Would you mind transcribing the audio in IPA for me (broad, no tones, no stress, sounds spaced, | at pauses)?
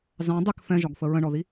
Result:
z ɑ̃ dˤ ɪ k f ɛ̃ ʒ ɒ ɡ f ə ɹ ə̃ ɳ ɔ ð i